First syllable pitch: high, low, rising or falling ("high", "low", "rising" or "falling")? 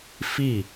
falling